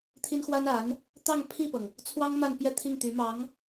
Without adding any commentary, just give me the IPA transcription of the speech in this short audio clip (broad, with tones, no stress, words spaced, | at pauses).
t̪ʰi˥n xwa˥na˧˥n | t̪ɑ˥˧ŋpʰi˥˩pɤ˩ŋ | t͡sʰwɑ˥ŋ ma˥˧npjɛ˥˧t̪ʰi˥˩ŋ t̪y˧˥mɑ˧˥ŋ